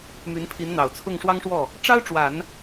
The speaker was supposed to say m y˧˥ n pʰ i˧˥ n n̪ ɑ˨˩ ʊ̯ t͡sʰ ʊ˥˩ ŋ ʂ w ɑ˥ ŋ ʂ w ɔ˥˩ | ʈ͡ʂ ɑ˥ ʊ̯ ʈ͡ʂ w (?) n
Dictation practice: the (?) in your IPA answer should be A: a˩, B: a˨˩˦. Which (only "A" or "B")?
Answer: B